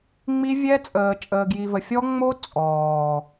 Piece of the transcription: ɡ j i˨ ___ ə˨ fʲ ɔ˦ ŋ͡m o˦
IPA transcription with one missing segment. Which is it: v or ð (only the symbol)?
v